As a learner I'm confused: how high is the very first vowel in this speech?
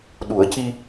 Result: high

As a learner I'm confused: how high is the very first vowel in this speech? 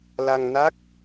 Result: low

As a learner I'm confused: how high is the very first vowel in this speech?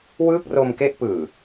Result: high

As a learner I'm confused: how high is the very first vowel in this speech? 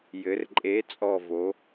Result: mid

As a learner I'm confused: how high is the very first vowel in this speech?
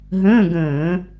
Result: mid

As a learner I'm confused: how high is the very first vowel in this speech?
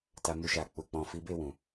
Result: low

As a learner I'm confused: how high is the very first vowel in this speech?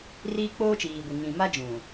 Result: high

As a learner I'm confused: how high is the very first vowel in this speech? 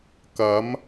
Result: low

